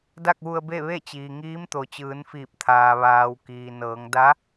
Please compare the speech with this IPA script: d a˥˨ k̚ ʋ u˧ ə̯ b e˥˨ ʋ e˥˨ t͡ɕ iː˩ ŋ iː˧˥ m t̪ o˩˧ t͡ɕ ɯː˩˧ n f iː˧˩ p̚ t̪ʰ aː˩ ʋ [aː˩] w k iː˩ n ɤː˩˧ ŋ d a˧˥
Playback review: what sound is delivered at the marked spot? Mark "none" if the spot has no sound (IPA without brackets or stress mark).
aː˩